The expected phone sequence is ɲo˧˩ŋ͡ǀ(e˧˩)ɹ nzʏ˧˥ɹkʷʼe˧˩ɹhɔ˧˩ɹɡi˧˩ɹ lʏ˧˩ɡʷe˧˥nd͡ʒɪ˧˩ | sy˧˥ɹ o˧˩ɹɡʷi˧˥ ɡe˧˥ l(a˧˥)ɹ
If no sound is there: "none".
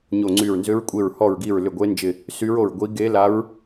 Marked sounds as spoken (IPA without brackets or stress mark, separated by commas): y˧˩, a˧˥